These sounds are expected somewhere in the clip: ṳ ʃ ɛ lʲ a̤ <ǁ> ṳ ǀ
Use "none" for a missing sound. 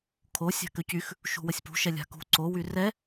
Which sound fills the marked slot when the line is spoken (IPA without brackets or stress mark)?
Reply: k